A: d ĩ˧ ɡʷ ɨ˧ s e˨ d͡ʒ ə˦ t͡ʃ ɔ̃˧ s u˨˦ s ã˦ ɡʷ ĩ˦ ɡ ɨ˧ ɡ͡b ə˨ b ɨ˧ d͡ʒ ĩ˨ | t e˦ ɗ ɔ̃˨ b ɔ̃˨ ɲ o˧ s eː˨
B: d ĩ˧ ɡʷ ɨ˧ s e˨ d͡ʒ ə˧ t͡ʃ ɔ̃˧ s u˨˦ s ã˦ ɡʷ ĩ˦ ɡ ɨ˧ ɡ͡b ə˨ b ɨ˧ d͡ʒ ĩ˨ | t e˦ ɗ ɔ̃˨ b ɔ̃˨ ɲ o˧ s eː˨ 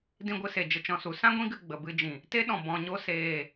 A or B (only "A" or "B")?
B